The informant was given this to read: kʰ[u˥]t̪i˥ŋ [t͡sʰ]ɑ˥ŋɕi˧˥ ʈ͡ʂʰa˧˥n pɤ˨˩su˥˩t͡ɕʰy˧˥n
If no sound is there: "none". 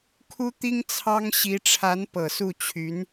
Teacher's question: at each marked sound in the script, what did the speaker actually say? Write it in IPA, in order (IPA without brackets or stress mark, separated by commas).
u˥, t͡sʰ